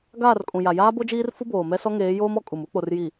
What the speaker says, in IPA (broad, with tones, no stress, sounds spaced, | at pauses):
ɡ aː˦˨ r kʼ ũ˨ j a˨ j aː˦ b o˦ d͡ʒ iː˦ r f u˦ b oː˨ m ɛ˦ s ɔ˦ ŋ eː˨˦ j oː˦ m ɔ˦ kʼ u˨ m u˦ k͡p o˨ r j i˨